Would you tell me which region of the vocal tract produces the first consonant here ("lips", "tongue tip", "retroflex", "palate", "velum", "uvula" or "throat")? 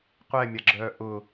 uvula